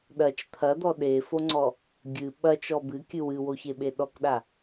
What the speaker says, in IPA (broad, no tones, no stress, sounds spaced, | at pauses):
ɗ ɐ t͡ʃ t̪ʰ ɐ d̪ ɔ ɗ e f o ŋ͡ǀ ɔ | ɡʲ ɨ ɓ ɐ t͡ʃ ɔ b ɨ kʲ ɨ w ɨ w o ç e ɓ e ɗ ɔ k ɗ a